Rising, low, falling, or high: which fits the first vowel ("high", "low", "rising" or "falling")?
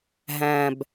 low